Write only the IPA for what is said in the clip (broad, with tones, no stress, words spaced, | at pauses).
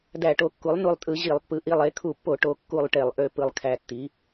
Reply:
dæ˧˩˧ʈo˩˥kːu˩˥lˠ nu˧˩lˠtʼɯ˧˩˧ ʑi˧˩˧lˠpːɯ˩˥ ʔi˧˩lˠ e˩˥ kʰu˧˩˧pːo˧˩˧ ʈo˧˩kːu˧˩lˠʈe˧˩˧lˠ ʔø˧˩ pɯ˧˩lˠkʰæ˧˩tːi˩˥